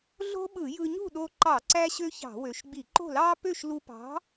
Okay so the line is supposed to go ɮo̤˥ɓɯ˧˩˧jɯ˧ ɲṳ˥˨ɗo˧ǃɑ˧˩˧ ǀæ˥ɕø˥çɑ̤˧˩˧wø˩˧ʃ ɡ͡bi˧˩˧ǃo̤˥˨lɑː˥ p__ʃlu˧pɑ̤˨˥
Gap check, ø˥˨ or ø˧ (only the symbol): ø˥˨